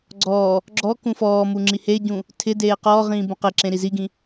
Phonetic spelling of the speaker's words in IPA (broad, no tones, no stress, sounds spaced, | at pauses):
ɡ͡ǀ ɔː | ɡ͡ǁ ɔ k ũ f ɔː m u ŋ͡ǁ i h e ɟ ũ | tʰ ɪ d eː q ɔː ʁ ĩː b ũ q e ǁ ẽ ɾ i z i ɡ ĩ